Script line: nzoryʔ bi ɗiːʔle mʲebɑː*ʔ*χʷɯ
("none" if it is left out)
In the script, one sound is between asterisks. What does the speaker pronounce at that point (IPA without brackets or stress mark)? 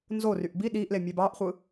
ʔ